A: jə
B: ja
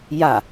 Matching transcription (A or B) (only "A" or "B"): B